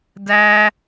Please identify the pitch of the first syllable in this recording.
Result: high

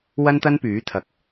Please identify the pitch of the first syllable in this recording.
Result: high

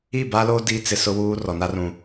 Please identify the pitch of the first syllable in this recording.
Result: falling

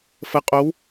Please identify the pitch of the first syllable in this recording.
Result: rising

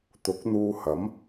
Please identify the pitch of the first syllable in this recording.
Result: rising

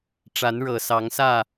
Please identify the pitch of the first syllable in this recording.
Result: rising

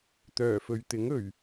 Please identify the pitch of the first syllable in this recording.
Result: low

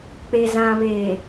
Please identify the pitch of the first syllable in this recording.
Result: low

